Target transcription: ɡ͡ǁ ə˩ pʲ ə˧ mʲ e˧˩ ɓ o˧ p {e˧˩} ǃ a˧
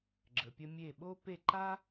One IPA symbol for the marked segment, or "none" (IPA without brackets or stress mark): e˧˩